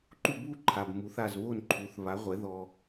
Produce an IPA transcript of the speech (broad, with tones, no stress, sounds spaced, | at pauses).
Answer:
ǃ u˥˩ b u˥ ǃʰ a˩ b m u˩˥ θ a˥˩ z β o˥˩ n ǃʰ u˩˥ θ β a˩˥ ʁʷ ɛ˩˥ ð ɔ˧